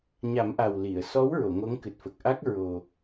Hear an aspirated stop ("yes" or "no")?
no